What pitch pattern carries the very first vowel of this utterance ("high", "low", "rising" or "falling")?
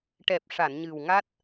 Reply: low